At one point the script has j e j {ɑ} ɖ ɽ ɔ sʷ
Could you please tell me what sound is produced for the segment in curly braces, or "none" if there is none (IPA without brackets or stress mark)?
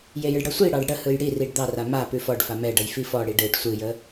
ə